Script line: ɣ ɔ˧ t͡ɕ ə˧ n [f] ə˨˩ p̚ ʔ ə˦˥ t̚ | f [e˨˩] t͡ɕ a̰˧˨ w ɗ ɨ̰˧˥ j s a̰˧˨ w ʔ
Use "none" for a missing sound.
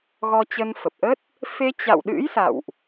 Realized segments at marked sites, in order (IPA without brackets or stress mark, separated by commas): f, e˧